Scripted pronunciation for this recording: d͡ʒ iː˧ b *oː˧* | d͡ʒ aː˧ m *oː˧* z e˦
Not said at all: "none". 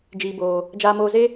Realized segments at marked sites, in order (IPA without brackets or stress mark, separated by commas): oː˧, oː˧